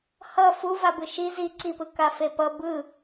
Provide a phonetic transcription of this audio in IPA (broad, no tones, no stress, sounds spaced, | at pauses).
h ʌ f u v a b ɯ ʃ i z i ǀ i p ɯ k a f e p ʌ b ɯ